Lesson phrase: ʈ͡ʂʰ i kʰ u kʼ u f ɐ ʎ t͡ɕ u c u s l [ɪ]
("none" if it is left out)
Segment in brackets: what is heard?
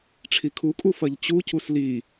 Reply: i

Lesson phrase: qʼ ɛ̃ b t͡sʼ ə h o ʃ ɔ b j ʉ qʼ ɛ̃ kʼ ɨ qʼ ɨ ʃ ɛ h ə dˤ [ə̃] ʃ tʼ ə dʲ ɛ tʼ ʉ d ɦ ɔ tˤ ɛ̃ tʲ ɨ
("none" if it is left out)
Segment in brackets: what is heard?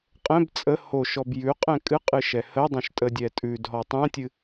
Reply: ə̃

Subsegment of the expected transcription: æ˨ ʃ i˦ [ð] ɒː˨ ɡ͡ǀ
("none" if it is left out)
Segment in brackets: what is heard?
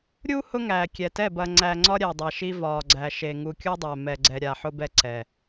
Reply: v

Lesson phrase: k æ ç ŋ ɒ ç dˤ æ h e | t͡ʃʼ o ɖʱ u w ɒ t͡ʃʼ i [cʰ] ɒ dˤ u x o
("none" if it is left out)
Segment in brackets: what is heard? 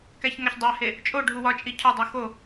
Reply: cʰ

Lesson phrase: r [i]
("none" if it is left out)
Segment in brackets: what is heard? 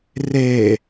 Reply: e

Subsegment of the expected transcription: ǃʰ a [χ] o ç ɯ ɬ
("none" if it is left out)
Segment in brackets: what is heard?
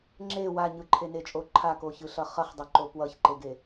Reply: k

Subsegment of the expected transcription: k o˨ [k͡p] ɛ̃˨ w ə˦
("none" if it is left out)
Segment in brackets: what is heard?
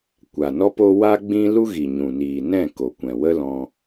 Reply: kʷ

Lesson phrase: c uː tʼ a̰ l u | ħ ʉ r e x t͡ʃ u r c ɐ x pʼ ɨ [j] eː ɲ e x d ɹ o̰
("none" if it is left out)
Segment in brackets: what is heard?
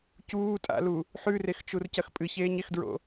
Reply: ç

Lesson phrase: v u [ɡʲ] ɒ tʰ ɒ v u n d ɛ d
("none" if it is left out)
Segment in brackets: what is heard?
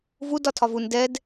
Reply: d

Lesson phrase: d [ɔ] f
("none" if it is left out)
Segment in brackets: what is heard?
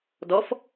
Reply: ɔ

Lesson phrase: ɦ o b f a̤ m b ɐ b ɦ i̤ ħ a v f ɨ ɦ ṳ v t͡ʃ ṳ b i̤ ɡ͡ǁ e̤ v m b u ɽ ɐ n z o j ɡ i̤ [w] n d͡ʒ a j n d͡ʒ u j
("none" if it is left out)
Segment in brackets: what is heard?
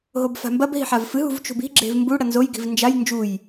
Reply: v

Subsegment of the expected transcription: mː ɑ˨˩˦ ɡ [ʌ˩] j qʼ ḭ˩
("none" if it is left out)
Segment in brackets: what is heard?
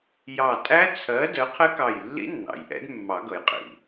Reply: ʌ˩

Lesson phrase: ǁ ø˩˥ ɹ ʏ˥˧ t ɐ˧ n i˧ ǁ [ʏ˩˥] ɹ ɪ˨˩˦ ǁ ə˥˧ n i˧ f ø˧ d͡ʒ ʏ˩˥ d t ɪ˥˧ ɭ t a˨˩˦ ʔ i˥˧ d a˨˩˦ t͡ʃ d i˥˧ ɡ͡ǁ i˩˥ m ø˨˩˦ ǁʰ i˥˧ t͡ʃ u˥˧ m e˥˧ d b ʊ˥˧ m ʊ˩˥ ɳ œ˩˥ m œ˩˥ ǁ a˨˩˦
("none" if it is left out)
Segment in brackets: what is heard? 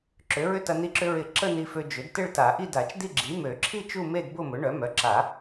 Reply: ʏ˧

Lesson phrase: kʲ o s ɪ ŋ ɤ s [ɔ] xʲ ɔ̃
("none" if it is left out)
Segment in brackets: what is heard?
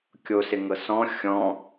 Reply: ɔ̃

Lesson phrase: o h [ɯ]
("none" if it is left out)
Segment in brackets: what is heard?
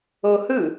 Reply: ɯ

